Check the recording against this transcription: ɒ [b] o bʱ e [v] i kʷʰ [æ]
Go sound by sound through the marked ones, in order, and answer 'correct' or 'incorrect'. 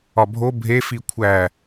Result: incorrect, incorrect, correct

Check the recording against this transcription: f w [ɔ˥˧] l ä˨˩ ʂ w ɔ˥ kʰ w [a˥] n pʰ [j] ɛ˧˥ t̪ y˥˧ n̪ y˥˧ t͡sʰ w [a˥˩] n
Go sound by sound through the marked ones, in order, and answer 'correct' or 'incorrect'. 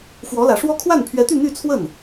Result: incorrect, incorrect, incorrect, incorrect

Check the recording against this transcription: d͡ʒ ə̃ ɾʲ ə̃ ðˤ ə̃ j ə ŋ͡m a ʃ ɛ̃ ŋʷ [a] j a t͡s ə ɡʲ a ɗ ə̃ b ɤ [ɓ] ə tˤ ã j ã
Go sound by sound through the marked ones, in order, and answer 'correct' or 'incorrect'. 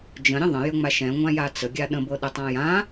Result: incorrect, incorrect

